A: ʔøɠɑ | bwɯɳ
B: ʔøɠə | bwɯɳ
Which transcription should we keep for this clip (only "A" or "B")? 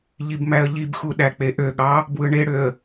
A